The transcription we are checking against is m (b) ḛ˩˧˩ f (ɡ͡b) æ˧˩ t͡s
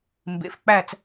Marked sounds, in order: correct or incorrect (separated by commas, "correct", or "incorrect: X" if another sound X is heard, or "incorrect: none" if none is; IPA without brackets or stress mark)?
correct, incorrect: k͡p